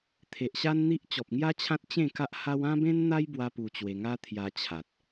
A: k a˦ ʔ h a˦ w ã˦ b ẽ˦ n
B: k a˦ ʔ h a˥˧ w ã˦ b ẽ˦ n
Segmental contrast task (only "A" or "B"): A